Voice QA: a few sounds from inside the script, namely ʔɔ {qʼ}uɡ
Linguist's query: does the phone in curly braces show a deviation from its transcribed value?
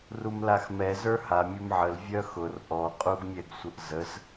no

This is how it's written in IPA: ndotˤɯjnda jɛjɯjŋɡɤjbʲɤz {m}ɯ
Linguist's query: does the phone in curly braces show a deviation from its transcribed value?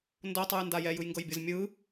yes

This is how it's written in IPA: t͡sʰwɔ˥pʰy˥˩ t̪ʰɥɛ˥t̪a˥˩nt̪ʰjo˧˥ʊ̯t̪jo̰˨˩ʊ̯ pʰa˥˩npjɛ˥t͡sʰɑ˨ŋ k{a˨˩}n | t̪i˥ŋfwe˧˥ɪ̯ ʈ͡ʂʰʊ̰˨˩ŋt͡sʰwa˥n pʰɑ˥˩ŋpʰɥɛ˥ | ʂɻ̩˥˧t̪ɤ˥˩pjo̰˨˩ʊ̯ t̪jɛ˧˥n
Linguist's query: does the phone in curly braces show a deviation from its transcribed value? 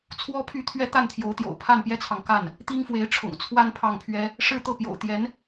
yes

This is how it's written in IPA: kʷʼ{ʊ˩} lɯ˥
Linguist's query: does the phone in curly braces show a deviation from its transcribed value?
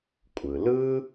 yes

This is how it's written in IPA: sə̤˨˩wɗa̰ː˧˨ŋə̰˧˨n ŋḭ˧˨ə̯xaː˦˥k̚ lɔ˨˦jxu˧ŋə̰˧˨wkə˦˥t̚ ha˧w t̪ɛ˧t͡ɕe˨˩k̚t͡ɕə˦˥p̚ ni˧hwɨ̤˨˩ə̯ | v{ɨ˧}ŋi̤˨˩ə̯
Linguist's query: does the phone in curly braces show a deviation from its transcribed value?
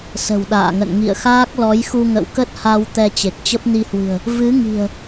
yes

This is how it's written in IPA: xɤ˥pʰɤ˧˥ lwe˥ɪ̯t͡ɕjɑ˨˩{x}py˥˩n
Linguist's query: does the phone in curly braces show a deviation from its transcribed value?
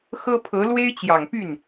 yes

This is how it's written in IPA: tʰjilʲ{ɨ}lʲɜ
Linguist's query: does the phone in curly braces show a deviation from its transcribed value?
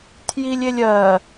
yes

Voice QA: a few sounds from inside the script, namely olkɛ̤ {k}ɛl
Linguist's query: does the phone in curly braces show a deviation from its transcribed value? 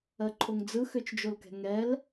yes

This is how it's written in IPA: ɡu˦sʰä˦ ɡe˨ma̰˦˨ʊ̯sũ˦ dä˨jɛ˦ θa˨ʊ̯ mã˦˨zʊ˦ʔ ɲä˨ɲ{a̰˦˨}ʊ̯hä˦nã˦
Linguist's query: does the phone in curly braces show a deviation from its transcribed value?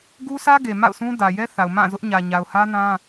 yes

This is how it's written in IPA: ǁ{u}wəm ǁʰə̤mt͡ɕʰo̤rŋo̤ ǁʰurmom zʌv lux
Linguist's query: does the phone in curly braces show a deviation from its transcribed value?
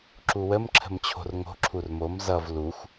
no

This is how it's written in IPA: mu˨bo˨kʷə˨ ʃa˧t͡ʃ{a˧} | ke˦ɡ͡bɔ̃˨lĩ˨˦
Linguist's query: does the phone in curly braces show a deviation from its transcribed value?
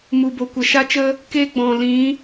yes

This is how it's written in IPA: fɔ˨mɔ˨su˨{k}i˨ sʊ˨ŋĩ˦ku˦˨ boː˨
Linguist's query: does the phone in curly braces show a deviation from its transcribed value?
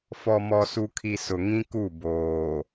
yes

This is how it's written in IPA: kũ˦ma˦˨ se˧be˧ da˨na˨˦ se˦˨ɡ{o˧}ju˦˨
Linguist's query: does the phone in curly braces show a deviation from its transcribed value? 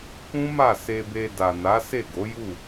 yes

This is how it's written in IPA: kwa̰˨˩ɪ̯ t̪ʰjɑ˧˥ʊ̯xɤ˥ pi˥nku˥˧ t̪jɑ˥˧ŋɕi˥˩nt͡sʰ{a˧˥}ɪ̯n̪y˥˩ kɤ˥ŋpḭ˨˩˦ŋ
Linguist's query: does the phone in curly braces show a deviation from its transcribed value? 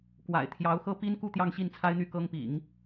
yes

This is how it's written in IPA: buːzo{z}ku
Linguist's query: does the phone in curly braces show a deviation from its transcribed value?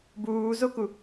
yes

